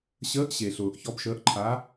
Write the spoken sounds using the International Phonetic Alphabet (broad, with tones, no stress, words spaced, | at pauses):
ɕəː˧˥ʔɕe˨ɬʊː˨ʔ çɔ˧˥bʃəː˧˥ʔǃʰa˧˥